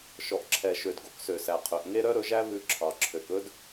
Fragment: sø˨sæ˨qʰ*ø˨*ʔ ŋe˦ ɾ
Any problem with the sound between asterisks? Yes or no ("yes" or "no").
no